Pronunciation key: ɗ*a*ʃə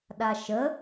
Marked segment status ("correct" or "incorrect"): correct